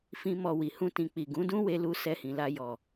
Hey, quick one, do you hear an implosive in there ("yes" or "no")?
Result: no